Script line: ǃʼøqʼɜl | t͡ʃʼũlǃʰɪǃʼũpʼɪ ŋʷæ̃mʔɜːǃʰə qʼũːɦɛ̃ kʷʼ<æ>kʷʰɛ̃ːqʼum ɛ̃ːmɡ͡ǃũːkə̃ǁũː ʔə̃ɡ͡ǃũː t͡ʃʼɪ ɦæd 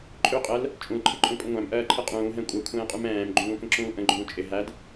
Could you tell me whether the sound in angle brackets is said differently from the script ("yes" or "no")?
yes